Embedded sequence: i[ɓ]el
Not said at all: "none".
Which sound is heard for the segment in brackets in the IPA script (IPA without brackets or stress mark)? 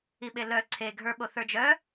ɓ